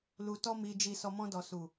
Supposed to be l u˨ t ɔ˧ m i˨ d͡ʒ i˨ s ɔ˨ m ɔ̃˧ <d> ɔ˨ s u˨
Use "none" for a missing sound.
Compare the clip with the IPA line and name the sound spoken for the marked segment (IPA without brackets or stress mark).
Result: d